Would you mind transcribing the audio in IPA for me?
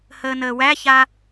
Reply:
həːnəːwæça

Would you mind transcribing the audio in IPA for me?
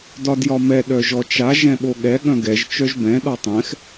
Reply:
dɒdjɒmɛ ɗœʒɔt͡ʃa ʒɛ̃ɓoɠɛ ɠœ̃ɡɛʒ t͡ʃœʒbɛ̃ ɗɔtˤɛ̃x

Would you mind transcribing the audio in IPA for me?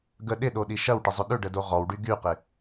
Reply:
ɡə ɗɪɗoɗi ʃɐwʈɪzˤʏ ɗʏɖədo ʁɔwɖy ɡyqɪ

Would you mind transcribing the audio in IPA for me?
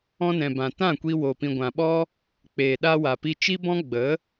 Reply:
ɔ̃˧nɛ̃˨bã˨ tã˦˨kʷi˧ wo˨pĩ˨ɡʷã˨ɓɔ˦ | k͡peː˨ɗa˧wa˨pi˧ t͡ʃi˦bɔ̃˦ ɡ͡bə˨˦

